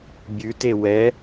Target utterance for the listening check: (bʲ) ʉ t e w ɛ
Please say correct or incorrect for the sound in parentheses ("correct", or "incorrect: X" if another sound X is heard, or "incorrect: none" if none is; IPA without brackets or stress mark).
correct